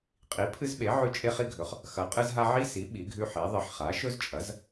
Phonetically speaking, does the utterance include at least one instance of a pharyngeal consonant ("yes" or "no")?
yes